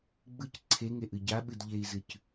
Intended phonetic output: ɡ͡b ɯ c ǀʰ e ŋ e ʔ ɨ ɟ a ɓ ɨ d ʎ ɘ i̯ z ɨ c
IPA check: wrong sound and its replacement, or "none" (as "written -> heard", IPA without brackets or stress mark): ɘ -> e